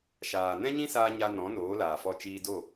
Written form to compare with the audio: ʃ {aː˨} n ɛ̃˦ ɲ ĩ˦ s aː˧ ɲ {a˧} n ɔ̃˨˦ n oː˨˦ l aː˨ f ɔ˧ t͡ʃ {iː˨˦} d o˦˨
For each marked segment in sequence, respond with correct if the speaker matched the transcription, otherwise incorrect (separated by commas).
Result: correct, correct, incorrect